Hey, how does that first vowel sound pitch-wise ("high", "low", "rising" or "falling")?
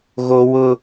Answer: high